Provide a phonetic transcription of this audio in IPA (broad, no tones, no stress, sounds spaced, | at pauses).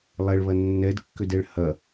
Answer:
lˠ ɛ ɭ β ɐ nː ɛ d kː ʏ d ɛ ɭ h ɐ